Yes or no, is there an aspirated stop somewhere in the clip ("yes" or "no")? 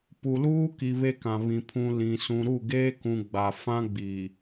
yes